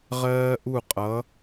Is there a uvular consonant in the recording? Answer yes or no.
yes